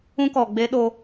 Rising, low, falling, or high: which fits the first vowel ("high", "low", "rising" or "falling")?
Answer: high